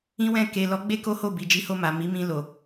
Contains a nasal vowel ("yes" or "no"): yes